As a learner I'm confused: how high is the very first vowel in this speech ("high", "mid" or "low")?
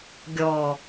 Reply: mid